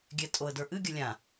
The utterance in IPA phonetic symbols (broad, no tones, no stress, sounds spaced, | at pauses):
ɡʲ ɛ tʼ o ə̯ d ə˞ ʔ ɨ ɡʲ ə lʲ ã